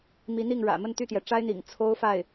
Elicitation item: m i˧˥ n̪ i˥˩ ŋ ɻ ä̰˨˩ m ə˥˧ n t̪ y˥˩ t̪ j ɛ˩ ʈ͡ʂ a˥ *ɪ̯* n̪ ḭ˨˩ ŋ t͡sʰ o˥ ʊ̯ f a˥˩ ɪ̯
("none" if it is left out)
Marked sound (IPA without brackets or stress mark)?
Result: ɪ̯